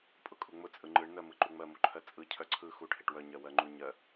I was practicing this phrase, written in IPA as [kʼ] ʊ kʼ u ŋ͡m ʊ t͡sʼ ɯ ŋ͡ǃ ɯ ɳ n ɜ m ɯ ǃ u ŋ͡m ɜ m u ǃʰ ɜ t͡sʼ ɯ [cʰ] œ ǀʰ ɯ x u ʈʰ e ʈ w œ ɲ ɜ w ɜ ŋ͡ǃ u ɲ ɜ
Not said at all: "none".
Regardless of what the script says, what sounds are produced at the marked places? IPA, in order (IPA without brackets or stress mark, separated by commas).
pʼ, cʰ